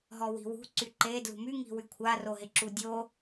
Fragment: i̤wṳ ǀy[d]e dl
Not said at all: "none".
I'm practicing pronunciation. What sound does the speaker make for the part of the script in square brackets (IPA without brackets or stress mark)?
ǃ